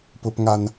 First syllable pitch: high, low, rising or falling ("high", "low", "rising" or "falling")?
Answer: high